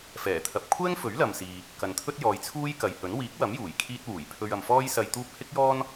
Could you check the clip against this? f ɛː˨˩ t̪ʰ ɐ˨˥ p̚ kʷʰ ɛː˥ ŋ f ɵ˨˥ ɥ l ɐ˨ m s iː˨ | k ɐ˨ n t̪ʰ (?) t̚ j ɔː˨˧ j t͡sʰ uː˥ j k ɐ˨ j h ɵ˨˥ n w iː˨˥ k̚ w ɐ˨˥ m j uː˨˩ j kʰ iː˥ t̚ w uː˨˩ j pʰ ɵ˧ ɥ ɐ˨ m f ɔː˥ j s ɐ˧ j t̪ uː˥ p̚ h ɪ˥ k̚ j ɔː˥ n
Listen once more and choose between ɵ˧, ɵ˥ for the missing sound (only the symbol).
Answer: ɵ˥